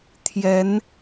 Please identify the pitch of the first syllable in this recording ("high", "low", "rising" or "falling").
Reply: rising